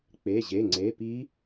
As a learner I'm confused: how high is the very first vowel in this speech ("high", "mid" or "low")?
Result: mid